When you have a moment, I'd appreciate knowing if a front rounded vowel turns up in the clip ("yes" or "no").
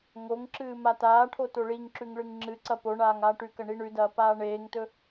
no